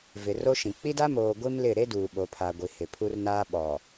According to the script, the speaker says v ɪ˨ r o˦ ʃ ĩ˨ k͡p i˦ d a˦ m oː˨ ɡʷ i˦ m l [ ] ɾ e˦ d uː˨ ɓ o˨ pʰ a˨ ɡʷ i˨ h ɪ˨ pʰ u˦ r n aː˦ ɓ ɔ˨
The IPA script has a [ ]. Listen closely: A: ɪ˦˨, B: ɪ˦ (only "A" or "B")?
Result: A